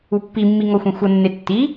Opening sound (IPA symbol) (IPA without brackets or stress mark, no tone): u